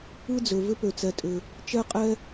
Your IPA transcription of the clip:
ɯ˥ d͡z ø˨ v ʏ˦ p ø˨ t͡s ɛ˨ tʼ ʏ˨ | t͡ʃ ɛ˦ qʼ ɛ˥

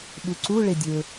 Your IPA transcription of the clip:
ɓ u ǀ u ɭ e dʲ ɵ

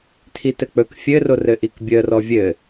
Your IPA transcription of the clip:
tʰ i t ɘ k͡p ɵ k fʲ ɘ r o r ɘ ʔ i k bʲ əː r ɔ vʲ ɘ

